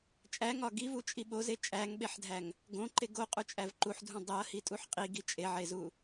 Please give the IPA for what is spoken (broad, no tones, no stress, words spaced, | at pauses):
t͡ʃʼæŋɒ ɡivut͡ʃʼi ɓoze t͡ʃʼæŋɓeħdʱæŋ | ɡõǃe ɡoqʼut͡ʃʼæv ǃuħdʱũ dˤiɐ̯hitʼuħ qʼiɡi t͡ʃʼeʕezu